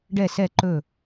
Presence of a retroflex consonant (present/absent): present